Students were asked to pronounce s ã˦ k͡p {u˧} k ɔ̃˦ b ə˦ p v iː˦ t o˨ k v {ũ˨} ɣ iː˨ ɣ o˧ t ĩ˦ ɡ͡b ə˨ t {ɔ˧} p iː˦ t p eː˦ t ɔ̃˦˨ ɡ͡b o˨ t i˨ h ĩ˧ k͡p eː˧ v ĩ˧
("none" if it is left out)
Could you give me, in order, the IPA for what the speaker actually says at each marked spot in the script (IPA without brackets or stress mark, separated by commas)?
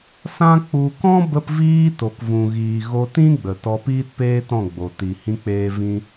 u˧, ũ˨, ɔ˧